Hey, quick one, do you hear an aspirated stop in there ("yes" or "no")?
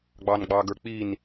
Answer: no